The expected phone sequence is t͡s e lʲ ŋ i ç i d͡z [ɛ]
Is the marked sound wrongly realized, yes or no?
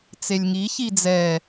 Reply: no